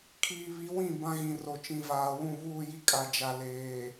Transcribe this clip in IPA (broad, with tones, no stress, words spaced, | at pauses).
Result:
kʰiː˨βi˨˦ wĩ˦˨ bã˦ɣĩ˨ro˨ t͡ʃĩ˨vaː˨wũ˦˨ βuː˦˨ji˦ kʼa˨d͡ʒa˨ leː˨